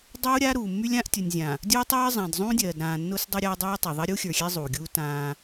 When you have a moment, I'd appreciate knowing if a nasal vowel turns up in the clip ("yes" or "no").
yes